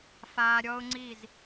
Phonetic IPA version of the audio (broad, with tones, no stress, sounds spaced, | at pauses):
f aː˧ ɾʲ ɔ˦ ʊ̯ ŋ͡ǀ i˦˨ z